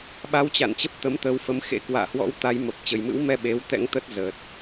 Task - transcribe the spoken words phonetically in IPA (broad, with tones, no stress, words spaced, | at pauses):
ɓa˧wt͡ɕa̰˧˨nt͡ɕə˦˥p̚ t̪ə˨˦mt̪ə˧wfə˨˦m xḛ˧˥kwa̰ː˧˨hwɔ̰˧˥w t̪a˨˦jmə˨˩p̚ t͡ɕə˨˩jmɨ̰˧˥wmɛ˧ ɓe˨˦wt̪ɛ̰˧˥ŋt̪ə˦˥t̚zəː˨˩t̚